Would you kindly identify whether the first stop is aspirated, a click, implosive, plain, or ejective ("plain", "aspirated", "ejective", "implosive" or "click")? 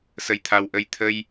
aspirated